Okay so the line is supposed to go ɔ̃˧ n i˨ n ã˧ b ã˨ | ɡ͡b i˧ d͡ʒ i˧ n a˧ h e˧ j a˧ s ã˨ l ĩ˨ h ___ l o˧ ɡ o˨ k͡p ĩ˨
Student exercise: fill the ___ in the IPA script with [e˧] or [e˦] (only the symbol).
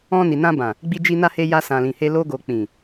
e˧